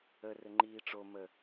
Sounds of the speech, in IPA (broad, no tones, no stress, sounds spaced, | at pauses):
ə r ɘ ŋ͡ǃ iː ʈ͡ʂ o m ə